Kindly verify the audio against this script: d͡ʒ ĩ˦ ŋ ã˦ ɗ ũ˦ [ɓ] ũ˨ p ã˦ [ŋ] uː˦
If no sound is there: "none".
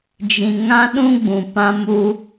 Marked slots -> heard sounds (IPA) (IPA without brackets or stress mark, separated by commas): ɡ͡b, m